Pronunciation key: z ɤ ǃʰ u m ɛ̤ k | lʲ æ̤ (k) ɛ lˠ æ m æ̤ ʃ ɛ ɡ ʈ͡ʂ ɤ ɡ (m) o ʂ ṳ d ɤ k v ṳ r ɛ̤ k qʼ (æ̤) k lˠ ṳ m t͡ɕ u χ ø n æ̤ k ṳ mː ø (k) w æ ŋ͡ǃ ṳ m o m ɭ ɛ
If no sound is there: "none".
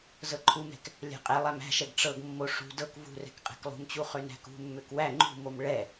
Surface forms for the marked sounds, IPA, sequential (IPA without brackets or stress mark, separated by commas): qʼ, mː, ɛ̤, k